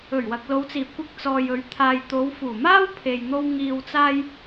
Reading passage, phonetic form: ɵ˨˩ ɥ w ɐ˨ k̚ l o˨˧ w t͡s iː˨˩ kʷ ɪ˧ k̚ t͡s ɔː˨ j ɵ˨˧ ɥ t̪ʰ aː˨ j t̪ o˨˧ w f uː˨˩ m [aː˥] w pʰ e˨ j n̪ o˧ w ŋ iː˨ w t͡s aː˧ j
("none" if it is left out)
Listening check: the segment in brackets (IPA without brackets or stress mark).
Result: aː˥